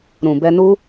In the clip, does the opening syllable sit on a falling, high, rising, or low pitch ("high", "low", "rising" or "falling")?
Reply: low